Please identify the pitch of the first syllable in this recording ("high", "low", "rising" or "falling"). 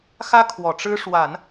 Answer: high